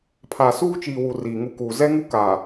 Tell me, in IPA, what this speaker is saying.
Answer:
pʰ a˨ s uː˦ t͡ʃ iː˨ w u˨ r iː˨ ŋ u˦ k uː˨ z ɛ˦ ŋ u˦ k a˨

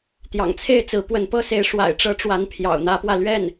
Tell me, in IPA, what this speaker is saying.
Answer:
t̪ j ɑ̰˨˩ ŋ t͡sʰ e˥˩ ɪ̯ t͡s ɹ̩˧˥ p w ə˧˥ n p ɤ˥ s e˧˥ ɪ̯ ʂ w a̰˨˩ ɪ̯ ʈ͡ʂ ɤ˧˥ ʈ͡ʂ w a˧˥ n pʰ j ɑ̰˨˩ ʊ̯ n̪ ä˧˥ p w ä˧ l ɥ ɛ˥˩ n

